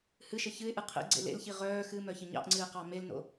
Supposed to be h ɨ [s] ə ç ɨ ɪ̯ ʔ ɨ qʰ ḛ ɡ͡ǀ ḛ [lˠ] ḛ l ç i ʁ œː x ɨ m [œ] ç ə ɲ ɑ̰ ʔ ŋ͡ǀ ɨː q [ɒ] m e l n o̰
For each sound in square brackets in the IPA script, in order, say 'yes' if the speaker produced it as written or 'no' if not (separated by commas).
no, no, yes, no